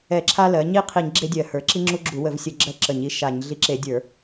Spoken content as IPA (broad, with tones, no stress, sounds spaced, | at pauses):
ɛ˧˩˧ ǁʰ a˦ l ɜ˩˧ ɲ i˦ qʰ i˧˩˧ ɲ ɡ͡ǁ e˦ dʲ ɜ˧˩˧ h ə˞˩˧ ǁ i˦ ŋ͡ǁ u˦ ɡ͡ǁ u˧˩˧ w ə˧˩˧ v sʲ ə˧˩˧ ɡ͡ǁ ɜ˦ ǁ ə˧˩˧ ɲ i˦ ʃ a˧˩˧ ɲ ɮ i˦ ǁ e˧˩˧ dʲ ə˞˧˩˧